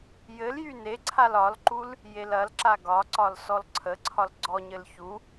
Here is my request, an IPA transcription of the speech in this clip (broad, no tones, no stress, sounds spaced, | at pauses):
j ɘ l j y n e ǀʰ a l ɒ l ǃ u l | j e l ɐ l ǁ a ɡ ɒ ǀ ɒ l s ɔ l ǀʰ ə ǀʰ ɒ l ɡ͡ǀ ɔ ɲ ɘ l ç u